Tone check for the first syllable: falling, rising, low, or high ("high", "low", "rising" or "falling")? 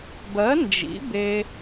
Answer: rising